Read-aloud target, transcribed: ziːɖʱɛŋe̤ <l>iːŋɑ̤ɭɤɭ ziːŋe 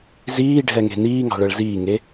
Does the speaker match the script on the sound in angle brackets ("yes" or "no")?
no